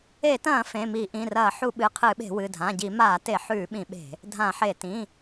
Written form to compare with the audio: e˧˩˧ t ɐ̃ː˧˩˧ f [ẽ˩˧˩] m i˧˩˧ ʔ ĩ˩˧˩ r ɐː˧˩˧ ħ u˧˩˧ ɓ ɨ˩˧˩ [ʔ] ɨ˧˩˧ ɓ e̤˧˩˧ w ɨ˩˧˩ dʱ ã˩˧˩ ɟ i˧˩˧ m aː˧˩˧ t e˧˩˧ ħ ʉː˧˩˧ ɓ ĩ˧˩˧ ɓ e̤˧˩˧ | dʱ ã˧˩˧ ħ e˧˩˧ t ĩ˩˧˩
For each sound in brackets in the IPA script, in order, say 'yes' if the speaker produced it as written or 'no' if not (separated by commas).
yes, no